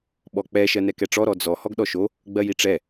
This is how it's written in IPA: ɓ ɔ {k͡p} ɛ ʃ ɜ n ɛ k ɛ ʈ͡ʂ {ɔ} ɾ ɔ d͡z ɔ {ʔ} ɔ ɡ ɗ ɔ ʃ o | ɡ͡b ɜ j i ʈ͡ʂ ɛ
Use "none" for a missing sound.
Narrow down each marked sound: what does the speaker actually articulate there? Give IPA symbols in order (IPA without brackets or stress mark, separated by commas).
k͡p, ɔ, h